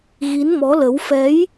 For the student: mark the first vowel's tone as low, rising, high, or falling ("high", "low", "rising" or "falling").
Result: rising